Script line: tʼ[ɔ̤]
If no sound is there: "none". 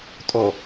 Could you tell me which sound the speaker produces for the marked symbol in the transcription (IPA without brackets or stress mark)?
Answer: ɔ